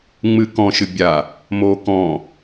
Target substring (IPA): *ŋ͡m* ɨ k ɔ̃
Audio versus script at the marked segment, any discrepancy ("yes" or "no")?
no